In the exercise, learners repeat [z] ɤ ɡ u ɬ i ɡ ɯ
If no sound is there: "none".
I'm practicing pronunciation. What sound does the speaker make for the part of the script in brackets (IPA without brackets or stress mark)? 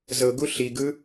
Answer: z